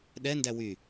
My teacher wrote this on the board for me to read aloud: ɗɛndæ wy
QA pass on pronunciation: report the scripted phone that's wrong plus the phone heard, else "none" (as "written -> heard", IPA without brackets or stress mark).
none